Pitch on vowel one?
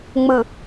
low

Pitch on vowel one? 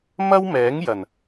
high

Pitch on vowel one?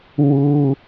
high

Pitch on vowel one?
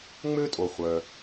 high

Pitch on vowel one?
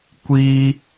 high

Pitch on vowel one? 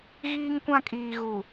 high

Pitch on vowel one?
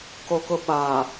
high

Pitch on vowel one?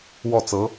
falling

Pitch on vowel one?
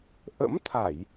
rising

